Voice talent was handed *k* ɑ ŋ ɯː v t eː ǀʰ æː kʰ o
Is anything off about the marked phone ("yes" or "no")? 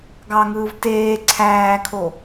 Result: yes